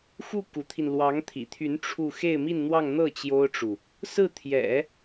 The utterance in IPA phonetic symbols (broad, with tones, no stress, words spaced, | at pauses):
xu˥˩ ku˧˥t̪ʰi˧n lwɑ˧˥ŋt̪ʰḭ˨˩t̪ʰy˧˥n ʈ͡ʂʰu˥˧ xe˥˧ɪ̯mi˥˧nn̪wɑ˥˧ŋ n̪ɤ˥˩ t͡ɕjo˥ʊ̯ʈ͡ʂu˨ | sɹ̩˥˩t̪ʰjɛ̰˨˩˦